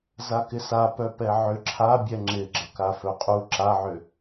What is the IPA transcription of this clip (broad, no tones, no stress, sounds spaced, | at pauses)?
z a k ɪ s a p œ p ɛ ʕ ʏ ǁʰ a bʲ ɛ ŋ͡ǁ ɪ ɡ͡ǁ ʌ k a f œ qʼ u ǁ a ʕ ʏ